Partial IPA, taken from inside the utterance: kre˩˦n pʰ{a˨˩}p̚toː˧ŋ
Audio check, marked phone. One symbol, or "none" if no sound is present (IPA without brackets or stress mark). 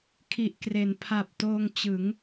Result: a˨˩